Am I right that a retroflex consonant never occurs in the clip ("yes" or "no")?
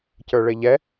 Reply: no